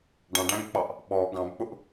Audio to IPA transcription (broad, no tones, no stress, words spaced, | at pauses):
ɖɑ̃ɖæ̃ɡk͡pɑʔ | ɓɔ ɡɑ̃bk͡pʊʔ